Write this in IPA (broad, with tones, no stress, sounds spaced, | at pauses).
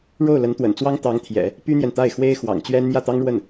ɻ o˥˩ ʊ̯ l ə˧˥ n t̪ w ə̰˨˩ n t͡s w ɑ˥ ŋ t̪ ɑ˧˥ ŋ t̪ʰ j ɛ̰˨˩˦ | p y˥ n̪ j ɛ˨ n t̪ a˥˩ ɪ̯ x w e˥ ɪ̯ x w ɑ̰˨˩ ŋ t͡ɕ ɥ ɛ˥ n m j ä˥˩ t̪ ɑ˥ ŋ ɻ w ə˥˩ n